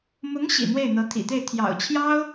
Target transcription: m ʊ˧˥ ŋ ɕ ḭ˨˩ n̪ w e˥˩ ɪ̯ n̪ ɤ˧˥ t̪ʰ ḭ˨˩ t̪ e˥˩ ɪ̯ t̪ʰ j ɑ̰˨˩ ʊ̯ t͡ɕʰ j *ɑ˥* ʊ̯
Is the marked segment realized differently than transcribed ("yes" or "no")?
no